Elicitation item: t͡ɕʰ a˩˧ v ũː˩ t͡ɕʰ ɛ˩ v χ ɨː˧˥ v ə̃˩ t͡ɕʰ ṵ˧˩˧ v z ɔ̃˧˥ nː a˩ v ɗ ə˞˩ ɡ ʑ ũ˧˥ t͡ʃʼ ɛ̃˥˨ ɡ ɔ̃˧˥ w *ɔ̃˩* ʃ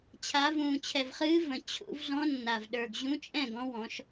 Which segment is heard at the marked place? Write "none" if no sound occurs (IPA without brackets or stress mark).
ɔ̃˩˧